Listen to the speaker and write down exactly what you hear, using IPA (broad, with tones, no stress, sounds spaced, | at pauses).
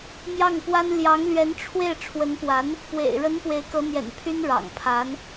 m j ɑ˥˩ ŋ p w a˥ n l j ɑ˧˥ ŋ l ɥ ɛ˧˥ n ʈ͡ʂʰ w e˥˩ ɪ̯ ʈ͡ʂʰ w ə˧˥ n p w a˧˥ n | p w ḛ˨˩ ɪ̯ ɻ ə˧˥ n p w e˧˥ ɪ̯ k ɤ˧˥ n̪ j ɛ̰˨˩ n pʰ y˥ n ɻ ɑ̰˨˩ ŋ pʰ a˧˥ n